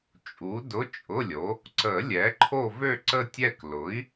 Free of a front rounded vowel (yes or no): no